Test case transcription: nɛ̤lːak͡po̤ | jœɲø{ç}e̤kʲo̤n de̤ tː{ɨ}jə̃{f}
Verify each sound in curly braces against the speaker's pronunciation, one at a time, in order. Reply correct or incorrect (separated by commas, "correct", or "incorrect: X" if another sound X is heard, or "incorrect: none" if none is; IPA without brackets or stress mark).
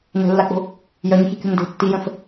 correct, incorrect: i, correct